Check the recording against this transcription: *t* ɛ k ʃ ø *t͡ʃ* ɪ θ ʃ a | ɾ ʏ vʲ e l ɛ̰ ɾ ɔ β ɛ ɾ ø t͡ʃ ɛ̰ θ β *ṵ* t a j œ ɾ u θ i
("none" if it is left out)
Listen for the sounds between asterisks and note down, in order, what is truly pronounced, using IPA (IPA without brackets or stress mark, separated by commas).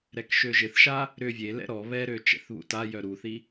ɾ, ʒ, ṵ